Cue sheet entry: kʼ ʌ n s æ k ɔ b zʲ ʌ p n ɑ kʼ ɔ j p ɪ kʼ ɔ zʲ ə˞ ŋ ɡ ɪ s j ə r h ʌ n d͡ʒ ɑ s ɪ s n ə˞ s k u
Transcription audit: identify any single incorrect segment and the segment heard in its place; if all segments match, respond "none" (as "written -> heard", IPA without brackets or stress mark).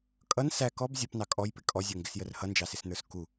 none